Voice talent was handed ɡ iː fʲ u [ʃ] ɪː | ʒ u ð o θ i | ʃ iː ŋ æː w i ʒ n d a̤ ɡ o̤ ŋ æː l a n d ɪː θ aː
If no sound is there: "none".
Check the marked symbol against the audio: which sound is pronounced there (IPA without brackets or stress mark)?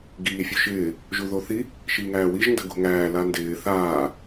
ʃ